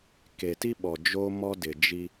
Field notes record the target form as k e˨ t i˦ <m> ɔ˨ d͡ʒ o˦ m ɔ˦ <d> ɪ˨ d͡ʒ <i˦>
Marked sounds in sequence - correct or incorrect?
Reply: incorrect: ɓ, correct, correct

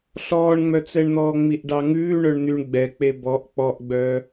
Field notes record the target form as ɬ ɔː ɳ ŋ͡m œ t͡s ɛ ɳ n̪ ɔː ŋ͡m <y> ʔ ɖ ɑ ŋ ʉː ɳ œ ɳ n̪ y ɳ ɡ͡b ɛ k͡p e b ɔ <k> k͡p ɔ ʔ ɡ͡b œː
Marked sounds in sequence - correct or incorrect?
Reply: incorrect: i, incorrect: ʔ

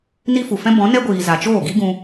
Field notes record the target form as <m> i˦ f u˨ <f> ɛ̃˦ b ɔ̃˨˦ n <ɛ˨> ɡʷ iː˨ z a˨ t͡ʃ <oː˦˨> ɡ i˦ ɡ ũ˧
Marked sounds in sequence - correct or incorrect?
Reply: incorrect: n, correct, incorrect: ɛ˦, correct

